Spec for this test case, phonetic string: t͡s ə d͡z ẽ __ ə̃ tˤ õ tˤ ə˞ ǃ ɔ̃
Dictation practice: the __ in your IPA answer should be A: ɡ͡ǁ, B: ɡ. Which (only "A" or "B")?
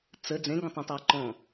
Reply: B